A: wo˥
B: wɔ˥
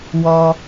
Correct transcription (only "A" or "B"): B